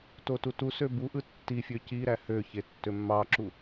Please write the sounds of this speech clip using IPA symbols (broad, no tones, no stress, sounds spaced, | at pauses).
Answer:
t o t u t u s ø b u ʔ ɯ tː i fʲ ø c i ɾ æ h ø ç e tː ø mː ɑ ǁ u